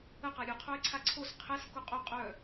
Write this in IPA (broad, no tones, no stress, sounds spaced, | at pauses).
ə q a ɾʲ ɵ qʰ o e̯ ǀʰ a ǀʰ o s qʰ ɛ s k o qʼ o qʼ œ